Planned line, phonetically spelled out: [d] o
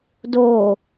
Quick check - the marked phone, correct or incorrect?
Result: correct